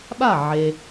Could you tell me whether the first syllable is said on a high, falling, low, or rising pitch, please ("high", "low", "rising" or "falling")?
falling